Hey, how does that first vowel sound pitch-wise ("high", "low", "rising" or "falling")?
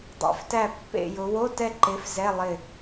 rising